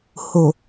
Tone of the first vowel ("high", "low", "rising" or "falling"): low